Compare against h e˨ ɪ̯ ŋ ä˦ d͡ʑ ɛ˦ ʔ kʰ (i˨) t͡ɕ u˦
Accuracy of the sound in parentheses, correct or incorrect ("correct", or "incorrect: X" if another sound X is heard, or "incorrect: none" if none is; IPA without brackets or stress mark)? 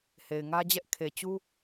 incorrect: e˨